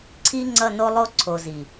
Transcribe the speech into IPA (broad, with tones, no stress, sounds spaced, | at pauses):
ǀʰ i˦ ŋ͡ǀ ʌ˦˨ n o˦ lˠ o˦ ǀʰ o˨ z i˨